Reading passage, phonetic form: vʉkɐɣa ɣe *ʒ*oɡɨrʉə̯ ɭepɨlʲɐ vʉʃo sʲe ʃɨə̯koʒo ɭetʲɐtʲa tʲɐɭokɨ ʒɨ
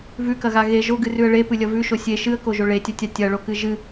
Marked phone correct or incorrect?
correct